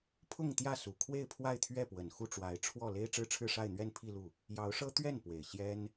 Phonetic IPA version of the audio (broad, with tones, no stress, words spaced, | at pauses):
pʰʊ˥˧ŋt̪jä˥˩su˨˩ kʰwe˥˧ɪ̯pʰwa˥˧ɪ̯t̪ʰɥɛ˥˩pwə˨˩n xu˥˩ʈ͡ʂwa˧˥ɪ̯ ʈ͡ʂʰwɔ˥˩ le˥ɪ̯ʈ͡ʂɻ̩˥ʈ͡ʂʰɻ̩˥˧ʂa˥˧ɪ̯ n̪ɥɛ˥˧n pʰi˥˧lu˥˩ | jɑ˧˥ʊ̯ʂɤ˥ t̪ɥɛ˥˩n pwe˨˩ɪ̯ ɕjɛ˥n